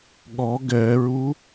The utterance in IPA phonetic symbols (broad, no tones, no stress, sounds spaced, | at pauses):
ɠ ɔ ɡ ɛ ɹ u